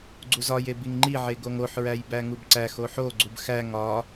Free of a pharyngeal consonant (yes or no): no